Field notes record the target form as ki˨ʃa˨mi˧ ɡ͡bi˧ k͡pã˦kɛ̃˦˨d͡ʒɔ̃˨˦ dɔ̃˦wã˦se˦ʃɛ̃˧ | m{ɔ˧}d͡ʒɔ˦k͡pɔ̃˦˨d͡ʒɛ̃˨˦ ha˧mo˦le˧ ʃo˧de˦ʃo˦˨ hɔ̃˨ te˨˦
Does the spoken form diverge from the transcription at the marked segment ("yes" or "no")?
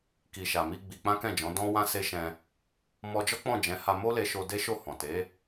no